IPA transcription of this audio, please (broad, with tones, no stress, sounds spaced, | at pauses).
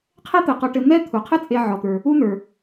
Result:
qʰ ɛ˥ t̪ ɘ˩ q ɔ˨ ʈ ɘ˨ n̪ ɛ˦ t̪ʰ u˩ qʰ ɘ˦ t͡sʼ e˨ ʕ ɔ˩ t̪ ə˞˩ | u˦ n̪ ə˞˩